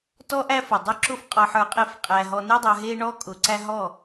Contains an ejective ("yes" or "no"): yes